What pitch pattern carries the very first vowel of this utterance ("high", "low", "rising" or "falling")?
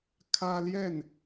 high